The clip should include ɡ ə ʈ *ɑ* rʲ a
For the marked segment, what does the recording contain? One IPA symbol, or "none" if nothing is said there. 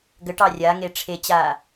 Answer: ɑ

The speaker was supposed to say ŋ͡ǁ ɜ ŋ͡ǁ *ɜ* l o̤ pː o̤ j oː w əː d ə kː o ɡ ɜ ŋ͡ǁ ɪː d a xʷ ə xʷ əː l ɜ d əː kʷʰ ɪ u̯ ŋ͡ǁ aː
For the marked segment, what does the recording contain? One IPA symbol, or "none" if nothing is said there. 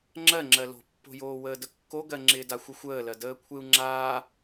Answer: ɜ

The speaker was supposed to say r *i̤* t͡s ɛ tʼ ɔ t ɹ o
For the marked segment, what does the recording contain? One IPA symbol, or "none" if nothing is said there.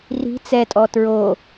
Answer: i̤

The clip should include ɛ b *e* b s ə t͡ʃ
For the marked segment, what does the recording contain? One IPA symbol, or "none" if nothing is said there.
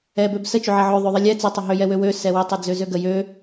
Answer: ø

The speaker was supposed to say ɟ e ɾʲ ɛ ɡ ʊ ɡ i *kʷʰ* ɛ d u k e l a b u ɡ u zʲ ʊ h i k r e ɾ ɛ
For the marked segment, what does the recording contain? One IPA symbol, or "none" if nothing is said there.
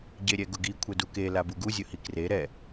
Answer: kʷʰ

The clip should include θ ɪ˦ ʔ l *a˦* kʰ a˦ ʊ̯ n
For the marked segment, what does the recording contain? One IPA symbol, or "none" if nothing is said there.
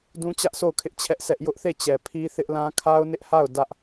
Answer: ã˦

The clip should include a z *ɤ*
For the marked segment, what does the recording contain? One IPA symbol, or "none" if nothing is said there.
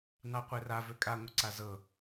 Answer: ɤ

